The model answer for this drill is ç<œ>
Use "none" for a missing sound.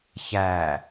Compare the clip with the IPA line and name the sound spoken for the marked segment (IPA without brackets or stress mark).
æ